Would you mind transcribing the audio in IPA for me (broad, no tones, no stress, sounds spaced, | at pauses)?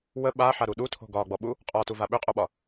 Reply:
w ə ɓ a ħ a ɾ u ɗ u tʰ o̤ ɡ ɒ ɡ͡b ɔ ɓ u | qʼ ɒ t u v a ɓ ʏ qʼ o ɓ ɒ